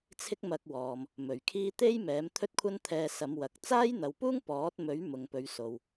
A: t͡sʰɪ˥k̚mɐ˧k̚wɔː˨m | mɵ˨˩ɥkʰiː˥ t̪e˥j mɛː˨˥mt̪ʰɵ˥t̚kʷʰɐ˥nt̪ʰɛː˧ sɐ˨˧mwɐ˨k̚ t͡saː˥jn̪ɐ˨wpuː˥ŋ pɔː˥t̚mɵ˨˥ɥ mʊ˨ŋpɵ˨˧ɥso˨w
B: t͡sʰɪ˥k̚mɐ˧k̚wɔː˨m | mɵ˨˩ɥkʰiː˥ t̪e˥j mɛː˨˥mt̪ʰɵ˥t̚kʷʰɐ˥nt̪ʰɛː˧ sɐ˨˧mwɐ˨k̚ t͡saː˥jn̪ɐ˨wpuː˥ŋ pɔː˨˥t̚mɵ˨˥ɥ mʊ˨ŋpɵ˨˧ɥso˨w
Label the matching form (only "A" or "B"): B